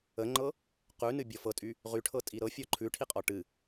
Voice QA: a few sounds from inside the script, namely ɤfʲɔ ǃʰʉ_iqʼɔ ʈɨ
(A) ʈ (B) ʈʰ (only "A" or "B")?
B